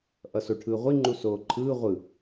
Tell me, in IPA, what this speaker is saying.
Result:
ʔ ʌ s o ʈʰ ɯː ʁʷ i ŋ͡ǃ u s oː ǃʰ ɯː ʁʷ ɯ

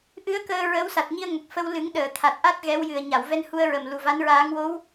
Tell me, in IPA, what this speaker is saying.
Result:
ʔ ɨ˧˥ ə̯ k əː˧ ɹ ə˧˥ w s a˨˩ t̚ ɲ i˧ ə̯ ŋ ə˨˩ k̚ f ə˧ w l ɨ˨˩˦ ŋ ɗ əː˨˩˨ t̪ʰ a˨˩ t̚ ʔ a˦˥ t̚ ɣ ɛ˧˥ w j ɨ˨˩ ə̯ ɲ a˨˩˨ w v ɛ˧ n h u˧ ə̯ ɹ ə˨˩ m l u˨˩ v a˧˥ n ɹ aː˧˥ ŋ w o˧˥ w

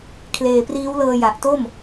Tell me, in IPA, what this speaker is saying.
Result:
kʰ l eː˨˩ p r iː˦˥ w l ɤː˧ j a˨˩ ʔ t o˥˩ m

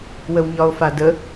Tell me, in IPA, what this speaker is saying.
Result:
w ə w ɲ ɒ o̯ f a d ə

